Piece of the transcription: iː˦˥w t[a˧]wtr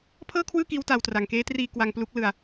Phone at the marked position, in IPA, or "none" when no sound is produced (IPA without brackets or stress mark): a˧